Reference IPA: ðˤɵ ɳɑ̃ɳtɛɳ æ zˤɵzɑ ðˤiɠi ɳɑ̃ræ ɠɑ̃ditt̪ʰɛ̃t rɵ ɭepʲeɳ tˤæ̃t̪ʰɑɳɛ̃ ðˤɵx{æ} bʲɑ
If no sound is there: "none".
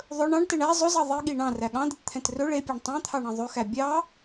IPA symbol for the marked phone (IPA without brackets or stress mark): æ